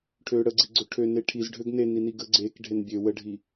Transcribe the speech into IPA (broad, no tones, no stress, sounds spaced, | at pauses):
ʈʰ ø ɽ ə ɡ͡ǀ i ɡ͡ǀ ø ʈʰ ø n e ʈʰ i z ɖʱ ø ɡ n e n i n i ɡ ə ɡ͡ǀ e k ɖʱ e n bʲ ø w ə ɖʱ i